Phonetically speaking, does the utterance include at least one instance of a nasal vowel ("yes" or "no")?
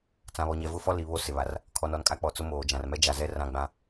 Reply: yes